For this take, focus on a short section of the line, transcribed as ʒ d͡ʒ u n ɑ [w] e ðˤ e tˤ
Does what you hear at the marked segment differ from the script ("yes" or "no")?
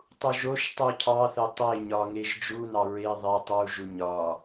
yes